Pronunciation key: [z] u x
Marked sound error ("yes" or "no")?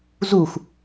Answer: no